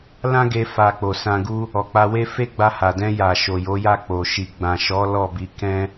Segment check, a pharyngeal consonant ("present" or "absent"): absent